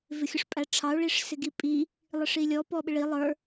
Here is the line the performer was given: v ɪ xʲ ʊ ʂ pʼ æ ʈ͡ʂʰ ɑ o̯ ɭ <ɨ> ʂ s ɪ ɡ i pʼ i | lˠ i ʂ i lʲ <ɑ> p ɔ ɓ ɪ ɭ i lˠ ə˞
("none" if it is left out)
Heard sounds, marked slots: i, ɔ

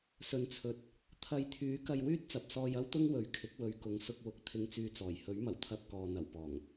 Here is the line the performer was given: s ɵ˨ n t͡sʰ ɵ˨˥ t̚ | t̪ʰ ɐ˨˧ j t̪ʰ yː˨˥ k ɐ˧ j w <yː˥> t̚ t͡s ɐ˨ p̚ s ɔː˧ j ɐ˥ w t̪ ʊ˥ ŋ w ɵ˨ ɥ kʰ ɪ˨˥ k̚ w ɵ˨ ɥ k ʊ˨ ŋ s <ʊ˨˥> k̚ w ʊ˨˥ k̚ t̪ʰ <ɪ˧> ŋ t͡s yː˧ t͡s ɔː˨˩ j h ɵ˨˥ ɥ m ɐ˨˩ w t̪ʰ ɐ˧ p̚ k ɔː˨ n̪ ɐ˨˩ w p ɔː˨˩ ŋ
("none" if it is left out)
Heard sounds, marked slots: yː˥, ʊ˧, ɪ˧

